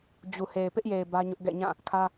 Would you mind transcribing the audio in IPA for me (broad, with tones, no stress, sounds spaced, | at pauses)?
d͡ʑ u˨ h e˨ ɪ̯ p ɪ˦ ʔ j e˨ ɪ̯ b ä˦ ɲ ʊ˦ ʔ ɡ ɛ̰˦˨ ɲ ã˦˨ | kʰ ä˦